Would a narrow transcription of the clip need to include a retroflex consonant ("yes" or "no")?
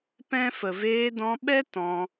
no